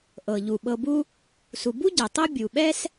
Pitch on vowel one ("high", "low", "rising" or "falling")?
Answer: low